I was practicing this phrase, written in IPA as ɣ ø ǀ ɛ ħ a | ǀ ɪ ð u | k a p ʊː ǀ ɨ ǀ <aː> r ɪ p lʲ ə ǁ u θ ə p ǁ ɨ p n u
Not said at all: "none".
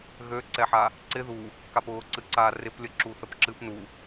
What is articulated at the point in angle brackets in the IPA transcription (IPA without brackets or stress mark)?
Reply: aː